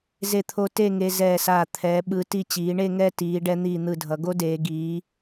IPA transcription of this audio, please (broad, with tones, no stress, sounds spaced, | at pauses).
z e˧˩ t̪ʰ o˧ t e˥˧ ŋ e˧ z ɛː˧˩ s aː˧˩ t̪ʰ ɛː˩˧ ɓ ɯ˩˧ t i˧ t͡ɕ iː˩˧ ɳ e˥˧ ŋ ɛ˥˧ t iː˩˧ ɖ ɛ˧ n̪ iː˧˩ n̪ ɯ˧˩ dʱ ʌ˩˧ ɡ o˥ d eː˩˧ ɡ iː˩˧